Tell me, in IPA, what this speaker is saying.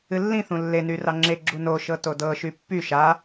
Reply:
ɨlːĩ θũlːe nyrɑŋ͡ǁe ɡ͡ǁuno ʃɤtodɤ ʃypːy ʃa

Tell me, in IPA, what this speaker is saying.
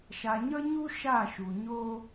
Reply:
ʃa˨ɲʌ˦ɲu˦ ʃa˦˨ʃu˨ ɲo˦

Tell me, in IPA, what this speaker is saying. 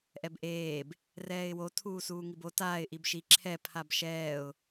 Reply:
ʔɛbʔeːb | rɛːɪ̯wo tʰuːsuːŋibo taːɪ̯ ʔibʃi ǁʰɛ pʰabʃɛːʊ̯

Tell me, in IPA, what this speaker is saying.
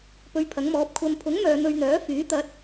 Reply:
pɵ˧ɥpʰɐ˨˥ŋmɔː˨˥p̚ kʷʰɐ˨˧mpʰʊ˨˥ŋ mœː˨˧n̪ɵ˧ɥn̪œː˨˥fyː˨˥ t̪ɐ˨˥t̚

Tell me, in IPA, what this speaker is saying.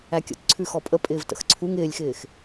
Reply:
ækʲə̰tǀʰʉ xɔpʼə pʼɪːvtə̰xǀʰuŋ ɪːlʲxɪːx

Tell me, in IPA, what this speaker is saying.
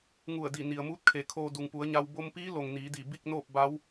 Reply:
ŋu˧˩ə̯di˧˩ ni˩ə̯muː˧˥t̚kʰe˩ kʰoː˧ du˩ŋpu˩˧ə̯ɲa˧w bo˧mpiː˧˥lo˩ŋ niː˩˧di˧˩bi˥˨k̚noː˥˨p̚ ba˧˥w

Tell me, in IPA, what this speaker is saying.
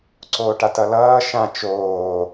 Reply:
ǀoːʈatʌlʌː ʃã t͡ʃoː

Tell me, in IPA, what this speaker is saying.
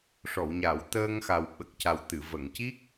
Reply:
ʂɔ˨˩˨wɲa˨˩˨w t̪əː˧ŋxa˨˩w ɓə˨˩k̚ca˨˩w t̪ɨ˨˩˨ və˨˩˨ŋci˦˥k̚

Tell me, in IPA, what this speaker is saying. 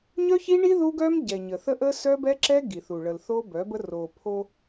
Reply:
ɲœ˦çi˦ɳi˦ ðu˦ɡœ˦m ɟɛ˨ɲə˨ θə˦ʔə˦ sœ˦bɛ˦ǁɛ˦ ɡi˨θu˨ ɭə˨lθo˦bœ˨˦bə˦ ro˨pʰo˦

